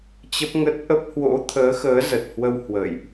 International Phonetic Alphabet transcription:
t͡ɕ ə˦˥ p̚ ŋ ə˦˥ t̚ ʔ ə˦˥ p̚ h w o̰˧˥ t̪ʰ əː˨˦ x əː˨˦ z ə˨˩ t̚ h w ə˧ w h w ə̰˧˨ j ʔ

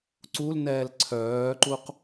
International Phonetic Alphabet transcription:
ǀ u l n ɛː l ǀʰ œː ǃ u q

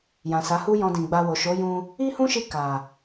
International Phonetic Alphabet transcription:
j ã˨ s a˨˦ h u˦ j ɔ̃˧ d ĩ˨ ɡ͡b a˧ w o˨ ʃ o˨˦ j ũ˧ | i˦ h ũ˦ ʃ i˧ k a˨

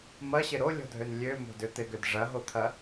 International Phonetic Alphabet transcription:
m ɐ ɕ ɪ ɾ o lʲ ɔ̤ dʱ ø n lʲ ø m o̤ d ʏ t̪ ɪ ɡ ʏ d ʐ ɐ ɦ o t̪ʰ ɐ

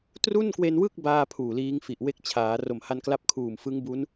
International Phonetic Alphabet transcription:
t r u˥˩ n k w e˧ n w ɯ˥˩ k̚ b aː˥˩ pʰ uː˨˩ l iː˦˥ ŋ f i˨˩ ʔ w e˥˩ k̚ t͡ɕʰ aː˩˦ r o˨˩ m h a˧ n k l a˦˥ p̚ kʰ uː˨˩ m f ɯ˦˥ ŋ b u˦˥ n

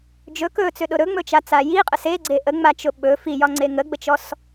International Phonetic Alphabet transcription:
d͡ʒ ɵ k ɵ t͡s ʏ ɗ ʊ ɾ ɵ ŋ͡m ɵ t͡ʃ a t͡s a j i qʼ ə s e ɡ͡ǀ e ʔ ə ŋ͡m a t͡ʃ ʊ ɓ ɵ f i j ɒ ŋ͡ǀ e ŋ ə ɡ͡b ə t͡ʃ ɔ s

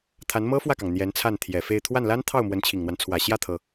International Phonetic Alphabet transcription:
t̪ʰ a˧˥ n m ɤ˥ f w ä˥˩ k ɑ˩ ŋ n̪ j ɛ˧˥ n t͡sʰ a˥˩ n t̪ʰ j ɛ˨˩ f e˥˧ ɪ̯ t̪ʰ w a˥˩ n l a˥ n t̪ʰ ɑ˥˩ ʊ̯ m w ə˧˥ n t͡ɕʰ i˨˩ ŋ n̪ w a˦ n t͡sʰ w ä˨˩ ɕ j ä˥˩ t̪ʰ ɤ˩

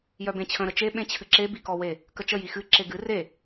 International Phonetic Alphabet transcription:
j œ b ẽ t͡ɕʰ ə̃ ɾ ə t͡ʃ e ɓ ẽ t͡ɕʰ ɨ ǁ e b i k ɔ w e | k ə t͡ʃ ə j i x ɨ ǁ e ɡ ɨ r e

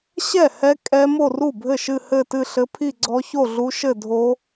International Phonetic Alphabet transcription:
ɕ ɛ˥˩ h ɛ˦˥ kʼ ɛ˦˥ m o˥˧ r u˥˩ bʱ ɘ˥˩ ʃ ɨ˥˧ h ɘ˥˧ t ɨ˥˧ ɬ ɘ˦˥ pʰ i˥˧ ɡ͡ǀ ɔ˦˥ ç o˥˧ ɮ u˦˥ ʃ ɘ˥˧ dʱ o˦˥

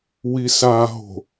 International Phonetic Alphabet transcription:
w i s a ɦ o̤

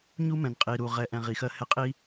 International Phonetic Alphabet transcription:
ɲ u˦ m ɛ̃˨ n qʼ i˨ ɾ u˨ ʁ ɛ˨ ʔ ɛ̃˨ ʁ i˨ x ɜ˦ h ɛ˦ qʼ i˦

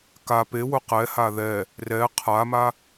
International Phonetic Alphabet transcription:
k a p e w ʊ q ɛ h a ð ɛ | r ɛ qʰ a m a

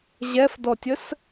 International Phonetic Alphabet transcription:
ʑ ɛ f d ɔ tʲ ə s

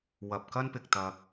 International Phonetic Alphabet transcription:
w ɐ˨ p̚ k ɐ˥ n p ɪ˨ k̚ t̪ ɐ˧ k̚

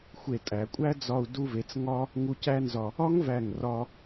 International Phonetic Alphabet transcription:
xʷ e˧˩ tʼ æ˩˧ kʷʼ æ˥ d͡z ɒ˧ u̯ d u˧ v e˩˧ t͡s ŋ ɒ˥ | ŋ u˧ c æ˥ n z ɒ˧ | ɒ˥ ŋ v æ˧˩ ŋ r ɒ˧

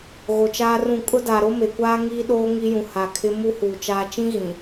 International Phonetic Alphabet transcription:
ɣ o˨ t͡ʃ aː˦ r ũ˦˨ kʼ ʊ˦ d a˨ ɾ o˦ m e˨ kʷ aː˦ ŋ iː˦ ɗ oː˦ ŋ i˦ j ũ˨ h a˨ kʰ ɪ˦ m u˦ h uː˨ t͡ʃ aː˨ t͡ʃ ĩ˦ ɣ ĩ˨

